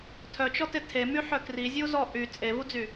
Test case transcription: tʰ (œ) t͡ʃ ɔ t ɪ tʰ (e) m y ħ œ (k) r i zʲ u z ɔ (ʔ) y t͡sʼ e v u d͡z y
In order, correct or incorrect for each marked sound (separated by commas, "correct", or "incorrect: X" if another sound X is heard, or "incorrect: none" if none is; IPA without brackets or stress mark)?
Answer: correct, correct, correct, correct